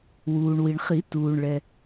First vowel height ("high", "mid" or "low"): high